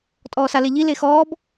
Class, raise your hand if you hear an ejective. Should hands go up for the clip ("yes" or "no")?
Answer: yes